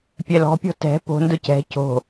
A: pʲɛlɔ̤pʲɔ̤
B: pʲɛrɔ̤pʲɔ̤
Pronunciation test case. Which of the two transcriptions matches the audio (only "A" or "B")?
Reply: A